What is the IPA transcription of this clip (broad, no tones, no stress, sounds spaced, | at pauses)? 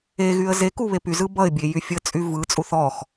e ɣ y ə̯ z e k u β e p y z ɯ b ʌ ɪ̯ bʲ e j y fʲ ə t͡sʼ y v ɯ t͡sʼ u θ ɔ x